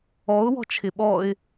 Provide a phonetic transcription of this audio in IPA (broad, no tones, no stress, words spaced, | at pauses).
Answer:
ɔʊ̯ wɔ̤t͡ʃʰɪɓɔɪ̯